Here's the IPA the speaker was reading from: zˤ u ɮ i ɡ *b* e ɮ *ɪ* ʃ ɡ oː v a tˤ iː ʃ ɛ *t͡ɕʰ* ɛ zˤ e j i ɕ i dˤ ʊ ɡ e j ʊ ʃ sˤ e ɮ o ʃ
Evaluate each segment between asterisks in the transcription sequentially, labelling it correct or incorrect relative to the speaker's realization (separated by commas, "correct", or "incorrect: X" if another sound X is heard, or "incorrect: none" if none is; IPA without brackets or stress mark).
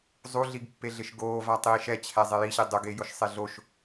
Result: incorrect: pː, correct, correct